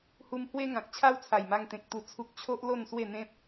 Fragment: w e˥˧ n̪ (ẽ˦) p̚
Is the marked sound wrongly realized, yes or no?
no